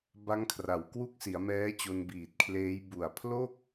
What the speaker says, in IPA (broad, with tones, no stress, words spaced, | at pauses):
ba˦˥ŋkʰra˨˩wkwu˥˩k̚ si˩˦a̯mɛː˦˥t͡ɕo˧n biː˨˩t̚kʰleː˦˥j bu˨˩a̯pʰlo˥˩k̚